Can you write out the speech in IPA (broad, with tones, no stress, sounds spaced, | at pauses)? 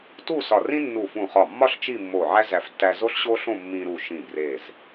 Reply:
t u˥˧ s ɒ˧˩ r ĩ˥ nː u˧˩ f ũ˧˩ χ ɒ˧˩ mː ɒ˥˧ ɬ t͡ʃ i˥˧ mː o˧˩ ʕ æ˥ z æ˧˩ f tː æ˧ z o˥ ɬ ɕ o˥ ɬ õ˥˧ mː ĩ˧ ɾ u˧˩ ʃ ĩ˧˩ b r e˧˩ z